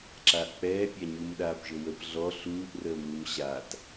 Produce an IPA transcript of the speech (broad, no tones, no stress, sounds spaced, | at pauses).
ǁ aː ʔ k͡p ɛː pʲ a ɲ u m ɗ aː p ʒ ɵ w ə p ɮ ɔ ɬ uː ʔ r əː m uː m ɕ a t